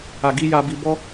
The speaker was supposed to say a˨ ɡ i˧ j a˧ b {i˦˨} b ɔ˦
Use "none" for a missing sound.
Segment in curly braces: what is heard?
i˧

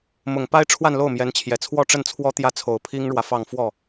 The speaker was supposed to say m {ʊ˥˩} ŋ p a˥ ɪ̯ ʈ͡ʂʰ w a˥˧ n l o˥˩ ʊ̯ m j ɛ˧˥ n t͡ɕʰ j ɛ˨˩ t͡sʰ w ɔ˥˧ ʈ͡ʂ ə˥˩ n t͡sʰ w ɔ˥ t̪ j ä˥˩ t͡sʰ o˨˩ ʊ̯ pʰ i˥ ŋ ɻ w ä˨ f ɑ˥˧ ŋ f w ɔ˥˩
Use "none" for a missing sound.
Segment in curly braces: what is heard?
ʊ˨˩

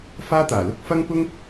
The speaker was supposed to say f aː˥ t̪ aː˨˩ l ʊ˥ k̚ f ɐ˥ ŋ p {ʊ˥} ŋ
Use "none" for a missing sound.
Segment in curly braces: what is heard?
ʊ˥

